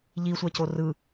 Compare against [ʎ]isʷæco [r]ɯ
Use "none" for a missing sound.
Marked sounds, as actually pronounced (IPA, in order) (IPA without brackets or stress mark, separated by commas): ʎ, r